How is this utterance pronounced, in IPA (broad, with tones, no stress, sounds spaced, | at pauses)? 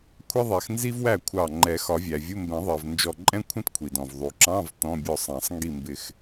kʷʰ ɛ˥ ðˤ ɛ˨˩˦ x n z i˥ v w æ˥˩ kʷʰ ɑ˧˩ ŋ͡ǃ ɛ˨˩˦ x ɒ˨˩˦ vʲ æ˩ vʲ u˧˥˧ m b ɛ̃˨˩˦ ðˤ ɜ˩ v n d͡ʒ ɔ˧˩ ǃʼ ɛ̃˥ kʷʰ ɛ̃˥ t kʷʰ i˩ d ɔ̃˩ v ðˤ u˩ ǁ ɑ̃˧˥˧ v t ɔ̃˧˥˧ bʲ ɔ˥˩ sˤ ɑ̃˨˩˦ sˤ ŋ ɡ i˥˩ m b ɪ˧˩ x